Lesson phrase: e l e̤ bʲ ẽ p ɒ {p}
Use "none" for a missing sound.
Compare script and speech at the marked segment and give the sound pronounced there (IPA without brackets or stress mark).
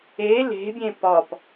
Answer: p